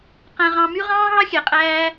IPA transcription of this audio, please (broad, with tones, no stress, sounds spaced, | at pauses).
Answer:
q æ̃˨ ʁ ɑ̃˨ m y˦ ʁ ɑ̃ː˦ ɦ ɑ˦ xʲ æ˨ qʼ æː˧